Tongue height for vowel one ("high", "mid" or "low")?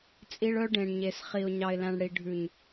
high